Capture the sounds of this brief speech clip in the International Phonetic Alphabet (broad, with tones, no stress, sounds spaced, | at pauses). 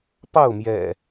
p ɑ˥˨ ʊ̯ m j ɛ̰˨˩